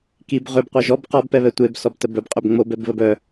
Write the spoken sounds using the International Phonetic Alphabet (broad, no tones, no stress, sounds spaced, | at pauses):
k i b ʁ ø b qʷ ɛ ʒ ɔ b q ɔ b p ɛ β ɛ tʷ e b s ɔ b t ə b œ b qʼ ø b ŋ͡m o b ɛ b β ə b œ